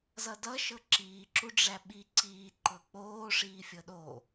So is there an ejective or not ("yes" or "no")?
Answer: no